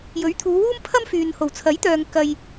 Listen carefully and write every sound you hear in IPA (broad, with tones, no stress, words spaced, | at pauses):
jɵ˨˥ɥt̪ʰuː˨˧wuː˥m pʰɐ˥mfyː˨n ho˨˩wt͡sʰɐ˨˥jt̪œː˨ŋ kɐ˨j